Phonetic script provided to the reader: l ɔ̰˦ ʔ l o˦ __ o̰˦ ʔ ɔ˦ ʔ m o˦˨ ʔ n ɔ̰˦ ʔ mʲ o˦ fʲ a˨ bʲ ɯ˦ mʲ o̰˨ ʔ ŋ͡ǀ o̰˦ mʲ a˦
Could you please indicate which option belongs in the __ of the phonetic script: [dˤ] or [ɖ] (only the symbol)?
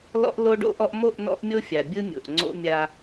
ɖ